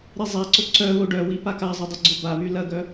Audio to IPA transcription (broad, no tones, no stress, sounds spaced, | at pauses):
ɾ i zˤ a ǀ o ǀ œ β o ɖ œ w i p a k a zˤ ʊ dˤ ʏ ɡ͡ǀ ʊ b a β y l ɐ ɡ œ